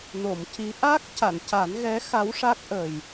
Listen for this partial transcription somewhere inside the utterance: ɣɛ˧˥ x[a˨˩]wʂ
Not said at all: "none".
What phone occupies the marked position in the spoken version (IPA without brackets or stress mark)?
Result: a˧˥